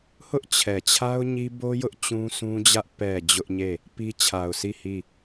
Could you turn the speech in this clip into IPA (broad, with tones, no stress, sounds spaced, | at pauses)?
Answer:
h ʊ˦ ʔ t͡ɕʰ ɛ˨ t͡ɕʰ a˦ ʊ̯ ɲ i˦ b o˦ j ʊ˦ ʔ t͡ɕ ũ˦ sʰ ũ˦ d͡ʑ ä˦ ʔ p ɛ˨ d͡ʑ ʊ˦ ʔ ɲ e˦˨ | p i˦ t͡ɕʰ a˨ ʊ̯ sʰ i˦˨ h i˦˨